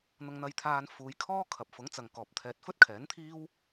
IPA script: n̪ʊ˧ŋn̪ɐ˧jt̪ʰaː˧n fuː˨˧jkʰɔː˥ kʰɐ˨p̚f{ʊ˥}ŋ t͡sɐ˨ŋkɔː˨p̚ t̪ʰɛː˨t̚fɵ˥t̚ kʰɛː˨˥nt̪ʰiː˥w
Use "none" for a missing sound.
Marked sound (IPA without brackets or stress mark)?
ʊ˨˥